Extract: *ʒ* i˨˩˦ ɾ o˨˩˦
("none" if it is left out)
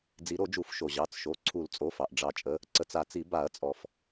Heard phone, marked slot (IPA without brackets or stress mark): d͡z